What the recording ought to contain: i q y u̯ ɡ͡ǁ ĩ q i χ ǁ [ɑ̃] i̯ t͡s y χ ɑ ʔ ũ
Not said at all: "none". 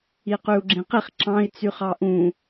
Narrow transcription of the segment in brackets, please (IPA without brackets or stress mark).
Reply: ɑ̃